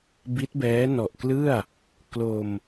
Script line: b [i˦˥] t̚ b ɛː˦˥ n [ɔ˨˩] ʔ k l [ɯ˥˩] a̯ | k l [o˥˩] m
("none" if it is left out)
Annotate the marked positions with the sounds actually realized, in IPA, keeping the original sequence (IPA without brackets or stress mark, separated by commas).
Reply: i˦˥, ɔ˨˩, ɯ˥˩, o˧